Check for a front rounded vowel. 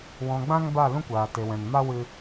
absent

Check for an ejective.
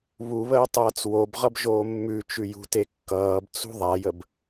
absent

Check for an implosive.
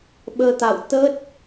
present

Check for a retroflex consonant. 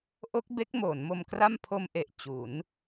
absent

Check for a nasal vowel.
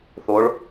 absent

